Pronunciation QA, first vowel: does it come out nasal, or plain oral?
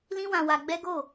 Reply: nasal